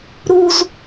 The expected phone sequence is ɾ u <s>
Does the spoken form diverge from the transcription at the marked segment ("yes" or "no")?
yes